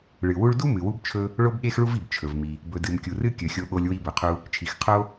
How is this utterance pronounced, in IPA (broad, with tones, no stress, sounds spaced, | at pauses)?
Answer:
ɭ ɨ˩ w u˧ ɭ d u˥ m ɨ˩ w u˧ b t͡ʃʰ ɵ˧ | ɭ o˥ b ɠ e˥ x ɭ u˥ v i˩ b t͡ʃʰ ɵ˩ v m i˩ | b ɵ˩ d ɨ˩ m kʲ u˩ r ɨ˥ kʲ ɵ˩ xʲ o˧ ɠ o˧ lʲ w i˧ b ɵ˩ qʰ u˧ | t͡ʃʰ i˩ x qʰ o˥